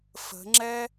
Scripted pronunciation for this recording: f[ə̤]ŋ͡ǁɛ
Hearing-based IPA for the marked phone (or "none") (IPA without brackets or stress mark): ə̤